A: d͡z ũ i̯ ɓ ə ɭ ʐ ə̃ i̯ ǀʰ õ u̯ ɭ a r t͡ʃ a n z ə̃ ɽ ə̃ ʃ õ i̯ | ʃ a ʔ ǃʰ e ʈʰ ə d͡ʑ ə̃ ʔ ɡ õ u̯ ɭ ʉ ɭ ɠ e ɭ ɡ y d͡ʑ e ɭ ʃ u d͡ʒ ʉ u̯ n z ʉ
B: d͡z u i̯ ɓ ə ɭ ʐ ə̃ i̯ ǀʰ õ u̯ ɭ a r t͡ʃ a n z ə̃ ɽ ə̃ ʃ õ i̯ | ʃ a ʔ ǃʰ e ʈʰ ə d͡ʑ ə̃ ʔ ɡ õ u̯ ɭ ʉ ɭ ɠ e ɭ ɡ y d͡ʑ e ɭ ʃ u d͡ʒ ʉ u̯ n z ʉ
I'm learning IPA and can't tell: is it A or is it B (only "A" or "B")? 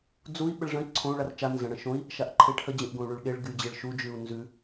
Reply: B